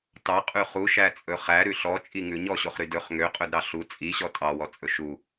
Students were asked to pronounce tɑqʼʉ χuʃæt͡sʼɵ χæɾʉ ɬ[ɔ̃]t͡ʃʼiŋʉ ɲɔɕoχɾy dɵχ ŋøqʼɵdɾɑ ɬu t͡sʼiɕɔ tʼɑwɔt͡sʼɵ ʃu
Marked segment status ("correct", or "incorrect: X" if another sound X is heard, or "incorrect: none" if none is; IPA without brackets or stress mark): incorrect: ɔ